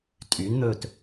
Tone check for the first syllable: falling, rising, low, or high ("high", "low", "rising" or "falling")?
rising